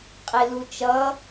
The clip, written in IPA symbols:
qʼelut͡ʃʌ

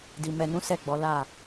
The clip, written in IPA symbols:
di˨ mɛ˨nũ˨˦ sɛ˦˨ɡ͡bɔ˨˦ la˦˨

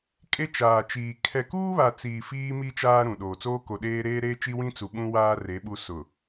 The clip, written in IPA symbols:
kʼe˦t͡ʃaː˨t͡ʃiː˨ kʰɛ˨kuː˦βa˨t͡siː˨ fiː˦mi˦ t͡ʃaː˦ɾũ˨ ɗoː˨t͡soː˦ ko˨ɗeː˦ ɾeː˦ɾeː˦t͡ʃi˦wĩ˦ t͡su˨ɓũ˦waː˦ re˨˦ɓu˦ sʊ˨

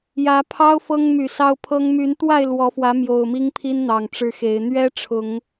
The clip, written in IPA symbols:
jä˨˦pʰɑ˦ʊ̯ fɤ˦ŋmy˨˩sɑ˦ʊ̯pʰɤ˦ŋ my˨˦nt̪wa˥˨ɪ̯ lwɔ˨˦fwä˨˦ mjo˨˩ʊ̯mi˦ŋpʰi˦n n̪ɑ˨˩ŋʈ͡ʂɻ̩˦xe˨˦ɪ̯ n̪ɥɛ˦ ʈ͡ʂʰʊ˨˦ŋ

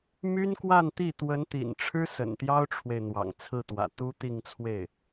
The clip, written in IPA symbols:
my˥nkwa˥˧nt̪i˥˩ t̪wə˧˥nt̪ḭ˨˩nʈ͡ʂʰɻ̩˥ sə̰˨˩nt̪jɑ˥ʊ̯ʈ͡ʂʰwe˨ɪ̯ n̪wɑ̰˨˩ŋt͡sʰɹ̩˥˩t̪wä̰˨˩ t̪u˥t̪i˥˧ŋt͡sʰwe˥˩ɪ̯

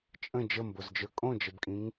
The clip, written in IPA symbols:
t͡ʃʼə̃ d͡ʒəmbozd͡ʒə˞ kʼõd͡ʒəbkʼĩŋ

